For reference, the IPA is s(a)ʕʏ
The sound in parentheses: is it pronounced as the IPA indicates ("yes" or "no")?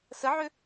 no